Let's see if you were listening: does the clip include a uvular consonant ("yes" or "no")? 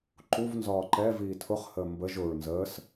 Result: yes